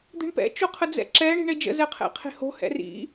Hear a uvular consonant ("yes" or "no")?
yes